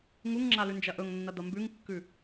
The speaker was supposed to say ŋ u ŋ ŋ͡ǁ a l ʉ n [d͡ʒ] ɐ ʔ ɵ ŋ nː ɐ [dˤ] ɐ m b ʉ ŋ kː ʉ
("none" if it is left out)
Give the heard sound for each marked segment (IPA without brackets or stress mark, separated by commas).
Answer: d͡ʒ, d̪